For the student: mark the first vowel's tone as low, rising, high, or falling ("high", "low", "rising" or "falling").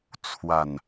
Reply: low